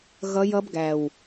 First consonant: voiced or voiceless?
voiced